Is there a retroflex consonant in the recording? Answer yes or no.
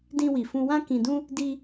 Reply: no